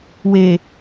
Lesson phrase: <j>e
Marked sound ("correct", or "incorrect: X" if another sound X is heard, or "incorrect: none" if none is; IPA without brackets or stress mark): incorrect: w